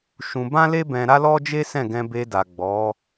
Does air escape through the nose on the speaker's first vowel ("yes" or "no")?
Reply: yes